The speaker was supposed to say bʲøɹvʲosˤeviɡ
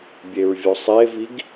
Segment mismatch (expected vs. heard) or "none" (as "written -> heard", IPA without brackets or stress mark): ø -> e